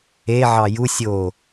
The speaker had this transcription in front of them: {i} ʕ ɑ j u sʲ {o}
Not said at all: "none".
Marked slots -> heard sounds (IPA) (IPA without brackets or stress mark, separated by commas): e, o